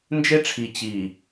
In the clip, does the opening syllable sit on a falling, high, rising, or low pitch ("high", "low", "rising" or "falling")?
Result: high